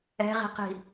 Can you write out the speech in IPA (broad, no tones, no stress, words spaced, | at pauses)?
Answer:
ɛ̤ʁi̤qi̤